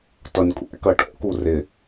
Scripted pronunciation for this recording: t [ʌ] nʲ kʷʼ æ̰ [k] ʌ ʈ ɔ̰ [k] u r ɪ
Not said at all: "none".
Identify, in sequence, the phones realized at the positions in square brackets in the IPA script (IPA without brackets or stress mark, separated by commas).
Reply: ʌ, k, k